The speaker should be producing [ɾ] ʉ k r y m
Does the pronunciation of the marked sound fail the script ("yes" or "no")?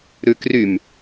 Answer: no